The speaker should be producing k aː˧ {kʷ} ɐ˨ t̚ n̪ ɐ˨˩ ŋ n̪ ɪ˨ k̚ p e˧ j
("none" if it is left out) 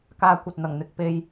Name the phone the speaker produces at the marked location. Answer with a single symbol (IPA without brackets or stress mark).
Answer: kʷ